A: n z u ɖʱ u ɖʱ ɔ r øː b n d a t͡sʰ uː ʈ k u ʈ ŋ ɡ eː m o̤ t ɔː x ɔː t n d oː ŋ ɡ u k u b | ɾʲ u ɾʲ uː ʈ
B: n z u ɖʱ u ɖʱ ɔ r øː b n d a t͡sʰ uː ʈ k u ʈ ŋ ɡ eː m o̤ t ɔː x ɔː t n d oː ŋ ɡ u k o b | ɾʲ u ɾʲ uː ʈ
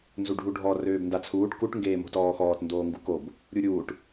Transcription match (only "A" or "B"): B